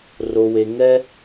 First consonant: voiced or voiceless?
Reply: voiced